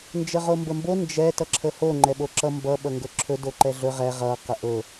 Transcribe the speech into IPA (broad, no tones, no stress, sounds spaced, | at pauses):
n d͡ʒ ə ʁ o m b ə m b o n d͡ʒ ɛ t ʌ ǁʰ ə h o ŋ͡ǃ ɛ ɓ o ǁ ʌ m b ʌ ɓ ʌ ŋ ɡ ɵ ǁʰ ɵ d o ǃ ɛ ɮ ɵ ʁ ɛ ʁ ʌ q ə ʔ ɵ